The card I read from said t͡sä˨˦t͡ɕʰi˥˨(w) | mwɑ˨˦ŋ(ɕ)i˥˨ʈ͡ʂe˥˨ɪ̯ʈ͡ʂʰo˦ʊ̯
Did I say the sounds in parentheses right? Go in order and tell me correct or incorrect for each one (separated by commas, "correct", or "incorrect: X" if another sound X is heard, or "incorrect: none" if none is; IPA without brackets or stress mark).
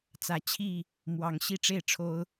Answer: incorrect: none, correct